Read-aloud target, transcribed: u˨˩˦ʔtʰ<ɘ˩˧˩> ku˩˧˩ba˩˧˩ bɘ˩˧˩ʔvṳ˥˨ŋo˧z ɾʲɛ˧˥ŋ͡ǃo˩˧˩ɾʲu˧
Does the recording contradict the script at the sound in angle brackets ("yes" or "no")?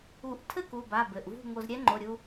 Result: yes